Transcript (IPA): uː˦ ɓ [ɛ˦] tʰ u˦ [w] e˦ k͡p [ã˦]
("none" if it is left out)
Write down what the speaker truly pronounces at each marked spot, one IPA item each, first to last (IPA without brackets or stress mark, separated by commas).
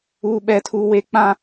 ɛ˦, w, ã˦